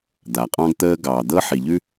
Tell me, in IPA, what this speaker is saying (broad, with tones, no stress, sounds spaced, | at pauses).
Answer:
d̪ a˨ qʼ ɑ̃˦ ɡ t̪ əː˦ ɡ ɑː˨ d̪ ɤː˦ ħ i˨ ʎ ʉ˦